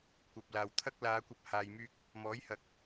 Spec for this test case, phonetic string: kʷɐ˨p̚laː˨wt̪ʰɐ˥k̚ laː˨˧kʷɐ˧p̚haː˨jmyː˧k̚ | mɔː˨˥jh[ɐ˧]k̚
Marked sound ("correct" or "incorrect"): incorrect